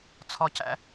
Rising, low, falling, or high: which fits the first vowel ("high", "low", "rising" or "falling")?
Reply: high